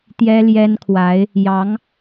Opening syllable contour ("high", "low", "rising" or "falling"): high